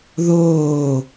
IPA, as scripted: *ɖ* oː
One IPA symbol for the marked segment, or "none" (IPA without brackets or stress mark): ð